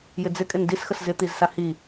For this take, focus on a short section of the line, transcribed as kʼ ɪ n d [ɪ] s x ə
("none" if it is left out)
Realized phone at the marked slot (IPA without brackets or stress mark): i